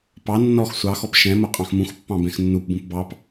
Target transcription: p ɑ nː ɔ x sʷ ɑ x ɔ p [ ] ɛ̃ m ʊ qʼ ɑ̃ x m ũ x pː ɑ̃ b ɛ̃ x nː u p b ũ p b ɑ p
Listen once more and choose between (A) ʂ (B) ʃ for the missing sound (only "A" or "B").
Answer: B